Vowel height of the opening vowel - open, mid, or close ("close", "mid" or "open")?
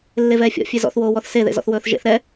mid